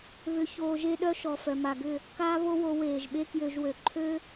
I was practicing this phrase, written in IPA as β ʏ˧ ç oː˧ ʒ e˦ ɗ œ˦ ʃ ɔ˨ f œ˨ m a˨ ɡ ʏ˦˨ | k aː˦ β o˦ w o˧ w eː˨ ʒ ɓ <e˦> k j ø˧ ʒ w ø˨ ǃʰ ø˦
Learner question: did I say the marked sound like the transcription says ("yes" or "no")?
yes